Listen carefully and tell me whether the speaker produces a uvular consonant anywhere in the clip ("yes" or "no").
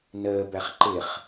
yes